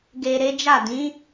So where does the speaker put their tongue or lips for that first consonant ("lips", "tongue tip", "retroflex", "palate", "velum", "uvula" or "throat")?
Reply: velum